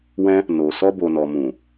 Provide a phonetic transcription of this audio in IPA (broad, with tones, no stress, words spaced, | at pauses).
wɛ̃˦ | no˨ sɔ˧bo˨nɔ˨ mũ˨